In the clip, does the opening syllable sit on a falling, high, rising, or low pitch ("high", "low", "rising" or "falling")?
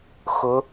rising